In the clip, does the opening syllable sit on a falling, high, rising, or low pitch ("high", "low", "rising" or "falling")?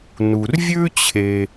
low